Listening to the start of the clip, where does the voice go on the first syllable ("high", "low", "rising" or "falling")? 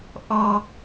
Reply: low